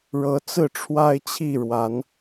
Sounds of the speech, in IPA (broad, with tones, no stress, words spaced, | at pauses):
ɻɤ˨˦ t͡sɹ̩˥˨ʈ͡ʂʰwa˦ɪ̯t͡ɕʰi˥˨ɻwa˨˦n